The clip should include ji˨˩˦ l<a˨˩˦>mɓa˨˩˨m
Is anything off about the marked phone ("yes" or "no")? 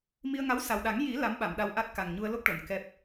yes